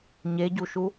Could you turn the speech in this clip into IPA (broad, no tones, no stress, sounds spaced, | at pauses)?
ɲ e ɟ u ʃ u